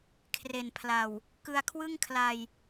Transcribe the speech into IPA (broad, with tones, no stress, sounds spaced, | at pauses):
kʰ r e˨˩ n pʰ l a˨˩ w | k ɯ˧ a̯ kʰ w ɯ˥˩ ŋ kʰ l a˧ j